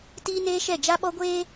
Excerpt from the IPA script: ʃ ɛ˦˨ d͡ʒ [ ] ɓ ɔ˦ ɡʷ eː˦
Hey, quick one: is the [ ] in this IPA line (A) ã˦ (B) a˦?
B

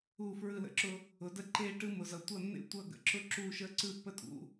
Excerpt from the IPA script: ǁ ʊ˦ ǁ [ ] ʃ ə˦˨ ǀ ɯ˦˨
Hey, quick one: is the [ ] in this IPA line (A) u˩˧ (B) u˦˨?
B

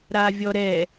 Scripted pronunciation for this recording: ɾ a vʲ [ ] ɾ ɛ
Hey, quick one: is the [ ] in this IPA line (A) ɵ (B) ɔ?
B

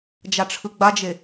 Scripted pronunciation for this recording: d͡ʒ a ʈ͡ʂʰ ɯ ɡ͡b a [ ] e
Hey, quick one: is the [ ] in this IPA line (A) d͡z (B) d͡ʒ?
B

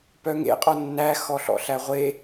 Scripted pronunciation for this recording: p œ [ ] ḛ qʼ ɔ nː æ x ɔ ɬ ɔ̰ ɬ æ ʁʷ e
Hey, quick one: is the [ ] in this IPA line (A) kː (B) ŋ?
B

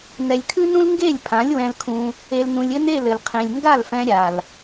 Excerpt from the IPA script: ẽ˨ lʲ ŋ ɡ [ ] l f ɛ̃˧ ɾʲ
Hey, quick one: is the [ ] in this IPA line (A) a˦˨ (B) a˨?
A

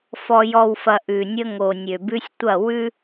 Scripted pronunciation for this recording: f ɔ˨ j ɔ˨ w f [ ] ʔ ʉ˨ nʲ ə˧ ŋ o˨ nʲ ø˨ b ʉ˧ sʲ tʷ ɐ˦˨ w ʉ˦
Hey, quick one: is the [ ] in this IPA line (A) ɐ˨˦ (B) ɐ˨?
B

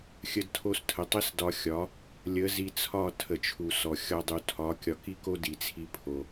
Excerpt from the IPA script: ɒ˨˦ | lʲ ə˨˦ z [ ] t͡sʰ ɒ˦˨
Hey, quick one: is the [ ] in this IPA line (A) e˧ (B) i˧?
B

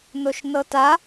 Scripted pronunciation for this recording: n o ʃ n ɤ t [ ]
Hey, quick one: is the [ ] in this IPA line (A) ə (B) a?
B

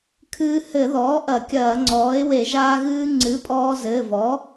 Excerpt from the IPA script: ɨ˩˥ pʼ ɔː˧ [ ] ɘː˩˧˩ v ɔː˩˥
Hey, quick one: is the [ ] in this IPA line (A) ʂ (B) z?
B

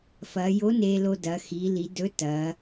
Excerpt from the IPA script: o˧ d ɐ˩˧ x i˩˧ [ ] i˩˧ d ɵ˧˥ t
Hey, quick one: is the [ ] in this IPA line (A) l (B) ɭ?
A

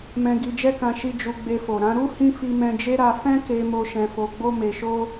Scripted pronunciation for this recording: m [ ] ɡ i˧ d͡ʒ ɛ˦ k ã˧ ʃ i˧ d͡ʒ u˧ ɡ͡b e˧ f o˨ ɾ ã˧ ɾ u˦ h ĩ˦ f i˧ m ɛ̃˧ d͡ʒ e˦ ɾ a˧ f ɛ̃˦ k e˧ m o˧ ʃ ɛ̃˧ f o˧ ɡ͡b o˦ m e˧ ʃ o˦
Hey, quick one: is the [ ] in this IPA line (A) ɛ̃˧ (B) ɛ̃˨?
A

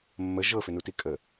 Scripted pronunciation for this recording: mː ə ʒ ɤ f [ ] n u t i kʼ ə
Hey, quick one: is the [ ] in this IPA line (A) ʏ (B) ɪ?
A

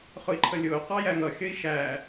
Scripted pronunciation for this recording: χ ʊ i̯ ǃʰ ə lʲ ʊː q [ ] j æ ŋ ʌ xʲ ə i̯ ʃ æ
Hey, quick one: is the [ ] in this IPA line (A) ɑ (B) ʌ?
A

